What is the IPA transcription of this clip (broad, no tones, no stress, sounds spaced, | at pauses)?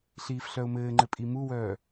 ɬ iː f ɬ œ ʊ̯ m ɘː ŋ͡ǃ ɘ pʼ i m u w œː